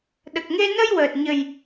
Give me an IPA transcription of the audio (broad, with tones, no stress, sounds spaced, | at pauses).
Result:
ɗ ə˨˩ k̚ ŋ e˧ n ə˧ j w əː˨˩ t̚ ɲ ə˨˩ j